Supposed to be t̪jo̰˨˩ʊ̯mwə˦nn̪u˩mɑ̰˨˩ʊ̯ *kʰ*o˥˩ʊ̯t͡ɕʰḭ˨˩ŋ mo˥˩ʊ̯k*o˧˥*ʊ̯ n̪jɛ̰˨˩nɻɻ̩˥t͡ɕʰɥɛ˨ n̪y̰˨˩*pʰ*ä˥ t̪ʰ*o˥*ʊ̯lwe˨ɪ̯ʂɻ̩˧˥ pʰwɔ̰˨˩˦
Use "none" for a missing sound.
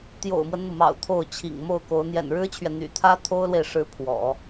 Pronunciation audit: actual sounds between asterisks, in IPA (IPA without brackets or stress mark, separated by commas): t̪ʰ, o˧˥, t̪ʰ, o˥